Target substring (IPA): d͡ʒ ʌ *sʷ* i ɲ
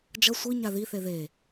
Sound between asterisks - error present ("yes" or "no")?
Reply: no